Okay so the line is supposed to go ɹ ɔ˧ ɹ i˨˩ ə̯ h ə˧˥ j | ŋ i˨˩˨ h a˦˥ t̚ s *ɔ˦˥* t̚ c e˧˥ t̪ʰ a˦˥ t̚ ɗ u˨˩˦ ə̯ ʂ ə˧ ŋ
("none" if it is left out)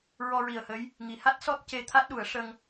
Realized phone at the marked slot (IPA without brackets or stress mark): ɔ˦˥